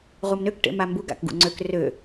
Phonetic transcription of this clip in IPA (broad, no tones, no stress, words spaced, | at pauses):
ʁumnøk ʈḛmambuɡ a̰kɡṵŋ͡ǀøk rø